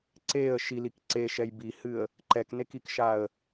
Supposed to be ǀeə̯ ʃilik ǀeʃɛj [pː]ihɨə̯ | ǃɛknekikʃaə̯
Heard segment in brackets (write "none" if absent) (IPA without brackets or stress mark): b